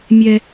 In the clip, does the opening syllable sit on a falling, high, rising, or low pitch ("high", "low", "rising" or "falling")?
high